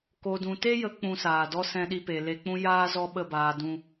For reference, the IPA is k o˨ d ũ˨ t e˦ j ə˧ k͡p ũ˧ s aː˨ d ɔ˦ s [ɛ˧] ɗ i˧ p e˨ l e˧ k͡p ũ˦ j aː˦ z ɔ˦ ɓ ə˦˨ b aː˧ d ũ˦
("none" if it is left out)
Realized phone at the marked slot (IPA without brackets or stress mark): ɛ̃˧